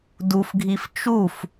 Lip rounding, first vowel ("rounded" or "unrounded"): rounded